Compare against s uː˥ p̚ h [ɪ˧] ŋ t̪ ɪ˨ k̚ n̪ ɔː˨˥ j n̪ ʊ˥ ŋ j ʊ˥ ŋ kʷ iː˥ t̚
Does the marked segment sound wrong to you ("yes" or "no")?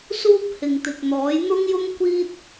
yes